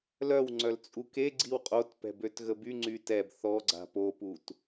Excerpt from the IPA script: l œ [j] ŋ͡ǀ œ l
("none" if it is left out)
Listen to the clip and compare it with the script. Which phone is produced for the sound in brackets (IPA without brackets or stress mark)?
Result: w